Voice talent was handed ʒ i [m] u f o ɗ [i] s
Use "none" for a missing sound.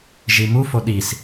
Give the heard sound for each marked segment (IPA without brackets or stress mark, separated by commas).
m, i